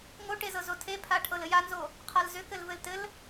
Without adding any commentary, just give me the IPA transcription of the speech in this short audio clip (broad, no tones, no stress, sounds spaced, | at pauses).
ŋ o ʈ e z ɤ z o tʰ e pʰ a ʈʰ ɤ l ɘ j a n z o | qʰ a l z ʏ k ɘ l v ɘ l t ɘ l